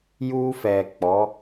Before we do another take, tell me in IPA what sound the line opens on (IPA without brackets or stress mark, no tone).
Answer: j